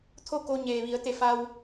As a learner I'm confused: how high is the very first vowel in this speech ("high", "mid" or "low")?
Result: mid